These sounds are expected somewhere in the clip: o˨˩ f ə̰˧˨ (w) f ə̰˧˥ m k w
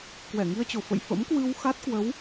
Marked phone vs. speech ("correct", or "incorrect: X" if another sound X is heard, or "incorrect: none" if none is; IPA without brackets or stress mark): incorrect: j